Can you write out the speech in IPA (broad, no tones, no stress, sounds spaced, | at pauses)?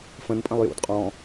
f ə̃ n pʼ ə̃ lˠ j ṵ d qʼ ɔ̃